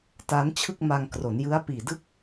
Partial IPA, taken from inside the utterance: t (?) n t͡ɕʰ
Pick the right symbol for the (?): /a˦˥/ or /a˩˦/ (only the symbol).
a˦˥